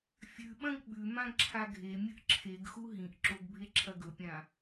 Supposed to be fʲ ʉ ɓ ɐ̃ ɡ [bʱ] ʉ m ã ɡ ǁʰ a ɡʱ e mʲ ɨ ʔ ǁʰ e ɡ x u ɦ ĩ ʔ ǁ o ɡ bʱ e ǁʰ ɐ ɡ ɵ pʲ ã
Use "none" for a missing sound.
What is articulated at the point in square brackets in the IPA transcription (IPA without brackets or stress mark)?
ɓ